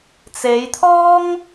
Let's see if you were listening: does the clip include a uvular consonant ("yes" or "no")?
no